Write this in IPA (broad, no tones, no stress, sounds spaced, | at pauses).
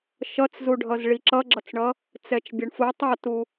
ʃ ʌ t͡s z u ɖʱ ʌ z ɭ i ǁ ʌ ɡ͡ǁ ʌ t͡s ɳ ʌ | t͡s ɛ t͡ʃ bʲ ʌ ɳ f u tˤ ʌ t u